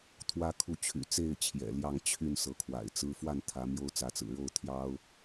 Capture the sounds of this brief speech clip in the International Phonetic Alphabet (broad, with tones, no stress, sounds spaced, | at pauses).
t̪ʰ w ä˥ kʰ u˥˩ t͡ɕʰ y̰˨˩ t͡s e˥˩ ɪ̯ t͡ɕʰ j ɛ̰˨˩ l j ɑ˥˧ ŋ t͡ɕʰ y˥˩ n s ɤ˧˥ kʰ w a̰˨˩ ɪ̯ t͡s ɹ̩˥ f w a˥˩ n t̪ʰ ä˧˥ m j o˥ ʊ̯ t͡s ä˧˥ t͡s ɹ̩˨˩ ɻ o˥˩ ʊ̯ t̪ʰ j ɑ˥ ʊ̯